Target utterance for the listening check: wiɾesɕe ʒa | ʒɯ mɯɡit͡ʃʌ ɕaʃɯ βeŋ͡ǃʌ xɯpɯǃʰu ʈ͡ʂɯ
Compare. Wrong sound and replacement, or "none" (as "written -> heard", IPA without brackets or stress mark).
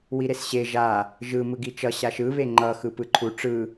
none